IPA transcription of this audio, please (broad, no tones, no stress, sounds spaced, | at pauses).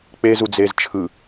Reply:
k͡p e z u d͡z e z t͡ʃʰ ɯ